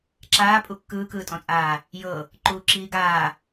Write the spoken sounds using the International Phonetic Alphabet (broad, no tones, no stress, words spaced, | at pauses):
ǁaːpʼu kːɯːkɯːtʼɔ̃t͡sʼaː | jɤ | ǃuːǁiːɡaː